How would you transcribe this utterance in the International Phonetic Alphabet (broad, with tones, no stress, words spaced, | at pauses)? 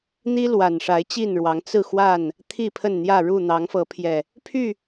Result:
n̪i˦ lwa˨˩nʂa˨˦ɪ̯t͡ɕi˥˨nɻwɑ˨˦ŋ t͡sɹ̩˥˨xwa˥˨n | t̪ʰi˥˨pʰə˥˨nn̪jä˥˨ ɻu˥˨ n̪ɑ˨˦ŋfɤ˨˦pʰjɛ˨˩ | pʰy˥˨